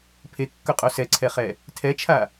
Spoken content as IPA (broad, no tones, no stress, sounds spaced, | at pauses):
pʰ e kː ɵ qʼ o s ɛ ǀʰ ɛ χ ɛ | tʰ ɛ t͡ʃʰ a